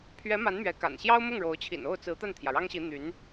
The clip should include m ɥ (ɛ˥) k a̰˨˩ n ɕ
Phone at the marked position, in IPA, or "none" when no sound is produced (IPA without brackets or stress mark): ɛ˧˥